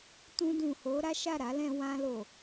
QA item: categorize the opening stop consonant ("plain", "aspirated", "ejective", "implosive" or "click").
plain